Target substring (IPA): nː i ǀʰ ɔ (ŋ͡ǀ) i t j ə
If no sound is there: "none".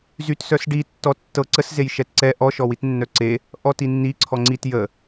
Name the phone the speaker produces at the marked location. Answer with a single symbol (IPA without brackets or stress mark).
ŋ͡ǀ